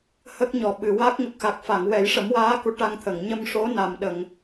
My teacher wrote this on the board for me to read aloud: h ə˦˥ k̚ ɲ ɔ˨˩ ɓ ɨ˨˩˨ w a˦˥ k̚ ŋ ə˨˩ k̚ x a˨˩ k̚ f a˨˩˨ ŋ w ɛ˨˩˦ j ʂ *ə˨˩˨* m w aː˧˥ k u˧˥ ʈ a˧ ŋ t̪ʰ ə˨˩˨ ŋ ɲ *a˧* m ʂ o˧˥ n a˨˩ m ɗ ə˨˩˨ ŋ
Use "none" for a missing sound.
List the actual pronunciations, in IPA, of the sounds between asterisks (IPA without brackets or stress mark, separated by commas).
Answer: ə˨˩˦, ə˧